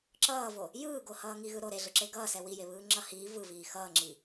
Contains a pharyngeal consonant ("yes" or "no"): no